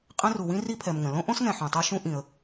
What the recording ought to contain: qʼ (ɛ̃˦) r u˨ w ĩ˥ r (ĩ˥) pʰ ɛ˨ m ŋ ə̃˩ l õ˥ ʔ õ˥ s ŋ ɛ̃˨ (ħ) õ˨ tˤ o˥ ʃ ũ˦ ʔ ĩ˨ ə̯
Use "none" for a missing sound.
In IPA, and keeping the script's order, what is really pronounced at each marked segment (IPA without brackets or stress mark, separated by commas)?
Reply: ɛ̃˦, i˥, ħ